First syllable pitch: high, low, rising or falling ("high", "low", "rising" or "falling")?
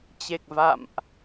low